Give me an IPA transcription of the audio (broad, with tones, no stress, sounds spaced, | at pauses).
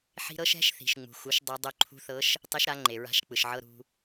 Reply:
ħ i̤˧ ɾ ɤ˧˥ ʃ ɛ̤˩˥ ʃ θ i̤˩ ʃ ŋ͡m ṳ˩ x u˩˥ ʃ dˤ o˧˥ dˤ o˧ ǃʰ ṳ˧˥ θ ɤ˧˥ ʃ | tˤ i˧˥ ʃ ɾ a˩˥ ŋ͡ǃ e˩ ɹ a̤˧˥ ʃ k͡p ɯ˩ ʃ ʕ ɤ˧˥˧ ɾ ṳ˧